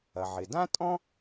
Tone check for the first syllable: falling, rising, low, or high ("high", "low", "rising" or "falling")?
low